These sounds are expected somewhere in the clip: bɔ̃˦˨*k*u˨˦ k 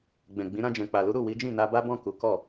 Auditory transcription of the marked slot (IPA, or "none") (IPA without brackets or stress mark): k